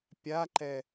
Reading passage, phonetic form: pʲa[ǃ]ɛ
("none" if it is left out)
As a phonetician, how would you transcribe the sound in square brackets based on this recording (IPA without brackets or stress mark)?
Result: ǃ